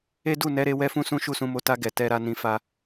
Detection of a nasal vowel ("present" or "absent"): present